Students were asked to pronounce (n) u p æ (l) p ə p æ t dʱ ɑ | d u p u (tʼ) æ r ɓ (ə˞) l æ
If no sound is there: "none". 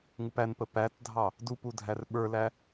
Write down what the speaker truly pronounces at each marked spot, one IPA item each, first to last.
ŋ, n, dʱ, ə˞

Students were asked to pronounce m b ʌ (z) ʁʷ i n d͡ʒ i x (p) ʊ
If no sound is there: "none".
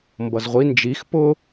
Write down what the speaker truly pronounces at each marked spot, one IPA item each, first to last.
z, p

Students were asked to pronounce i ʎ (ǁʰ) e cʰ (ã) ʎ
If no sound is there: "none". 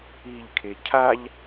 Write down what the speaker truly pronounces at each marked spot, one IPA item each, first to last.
kʰ, a

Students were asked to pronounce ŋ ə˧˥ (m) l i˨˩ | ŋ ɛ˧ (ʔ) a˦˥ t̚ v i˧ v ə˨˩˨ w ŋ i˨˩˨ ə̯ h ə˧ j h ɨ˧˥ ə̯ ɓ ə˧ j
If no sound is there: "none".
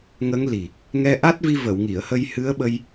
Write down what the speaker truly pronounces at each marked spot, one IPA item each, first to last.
ŋ, ʔ

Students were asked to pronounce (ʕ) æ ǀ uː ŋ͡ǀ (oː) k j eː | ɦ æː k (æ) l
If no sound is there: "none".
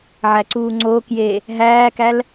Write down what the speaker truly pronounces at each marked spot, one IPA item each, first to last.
ʕ, oː, æ

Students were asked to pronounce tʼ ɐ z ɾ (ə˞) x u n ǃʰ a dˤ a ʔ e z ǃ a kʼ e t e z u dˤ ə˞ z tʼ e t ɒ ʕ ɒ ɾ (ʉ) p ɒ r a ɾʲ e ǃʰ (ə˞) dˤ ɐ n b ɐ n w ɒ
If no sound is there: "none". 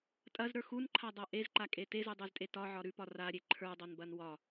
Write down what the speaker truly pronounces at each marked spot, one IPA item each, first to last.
ə˞, ʉ, ə˞

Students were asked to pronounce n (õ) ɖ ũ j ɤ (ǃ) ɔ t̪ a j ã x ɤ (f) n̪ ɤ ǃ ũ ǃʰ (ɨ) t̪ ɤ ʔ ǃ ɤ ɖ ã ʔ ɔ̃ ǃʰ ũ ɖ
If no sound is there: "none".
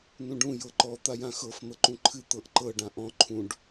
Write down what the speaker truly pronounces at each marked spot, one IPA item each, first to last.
ũ, ǃ, f, ɨ

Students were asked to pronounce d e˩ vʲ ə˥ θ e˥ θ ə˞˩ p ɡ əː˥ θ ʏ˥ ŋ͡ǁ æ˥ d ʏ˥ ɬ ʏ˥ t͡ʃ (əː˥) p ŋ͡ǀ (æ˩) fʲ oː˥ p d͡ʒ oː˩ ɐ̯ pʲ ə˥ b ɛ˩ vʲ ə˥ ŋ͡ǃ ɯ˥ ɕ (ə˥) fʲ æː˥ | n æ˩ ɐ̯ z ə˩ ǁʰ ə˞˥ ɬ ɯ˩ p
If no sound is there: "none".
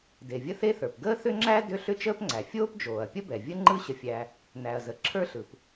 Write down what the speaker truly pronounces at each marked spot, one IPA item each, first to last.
əː˥, æ˩, ə˥

